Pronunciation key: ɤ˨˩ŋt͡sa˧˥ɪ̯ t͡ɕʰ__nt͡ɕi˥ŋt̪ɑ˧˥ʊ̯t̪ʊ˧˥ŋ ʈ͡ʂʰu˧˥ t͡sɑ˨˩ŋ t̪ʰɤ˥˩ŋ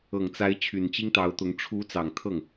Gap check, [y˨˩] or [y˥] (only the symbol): y˨˩